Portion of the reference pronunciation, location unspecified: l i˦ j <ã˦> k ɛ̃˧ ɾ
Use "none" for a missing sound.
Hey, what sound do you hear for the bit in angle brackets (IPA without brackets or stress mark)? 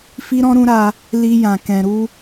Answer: ã˧